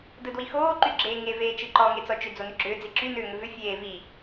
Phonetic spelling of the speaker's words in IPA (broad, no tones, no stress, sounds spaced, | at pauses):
d ɯ d w i x oː ǃ y ɡ͡ǁ eː ŋ e v eː t͡ʃ ɯ ǃ ɔ ŋ e t͡s ɔ t͡ʃ ʏ d͡z o n ʏ ɡ͡ǁ ʏː d͡z i ǁ y n ʏː ŋ ʏ v ʏ fʲ eː v i